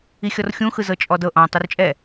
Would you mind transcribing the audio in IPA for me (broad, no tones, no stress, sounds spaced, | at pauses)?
i xʲ ɔ r xʲ ũ x ɯ z ɤ t͡ʃʼ ɔ d ɤ ʔ ɔ̃ː tˤ u r t͡ʃʼ ɛ